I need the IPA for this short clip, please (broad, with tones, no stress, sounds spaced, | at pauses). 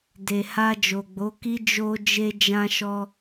d e˨ h a˧ d͡ʒ o˨ ɡ͡b o˨˦ k i˦ d͡ʒ o˧ d͡ʒ e˧ d͡ʒ ã˧ ʃ ɔ˧